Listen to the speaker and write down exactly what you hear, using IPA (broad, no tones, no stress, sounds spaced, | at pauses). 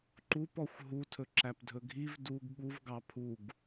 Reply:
ǃ u p ɔ xʷ ɦ u tʰ ɵ ǁ æ p dʱ ɵ ɡʱ i v d u ɡ ɠ u v ɡ ɑ pʰ u ɡ